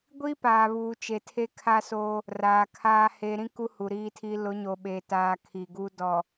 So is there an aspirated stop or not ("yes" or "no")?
yes